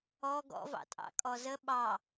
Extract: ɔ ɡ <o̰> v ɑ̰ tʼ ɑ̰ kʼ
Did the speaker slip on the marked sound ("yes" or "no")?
yes